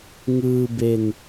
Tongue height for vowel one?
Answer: high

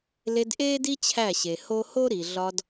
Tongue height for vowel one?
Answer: mid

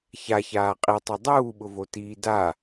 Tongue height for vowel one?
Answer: low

